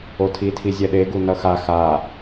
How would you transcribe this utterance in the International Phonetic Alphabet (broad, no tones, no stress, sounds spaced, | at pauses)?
o tʰ i tʰ i zʲ ɛ ɗ e ɡ u n ʌ x a x a